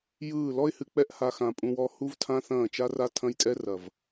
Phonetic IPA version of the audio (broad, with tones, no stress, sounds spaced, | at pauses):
j ɯː˦˨ l ɔ˦ ɪ̯ h ɨ˨ k͡p ɛ˦ ʔ h a˧ x ã˨ pʼ ũ˧ w ɔ˧ h u˦ v tʰ ã˦ θ ɐ̃ː˦˨ t͡ʃ a˦ r a˦ tʰ ɐ̃˦ j tʼ ɛ˦ r ɐ˨ v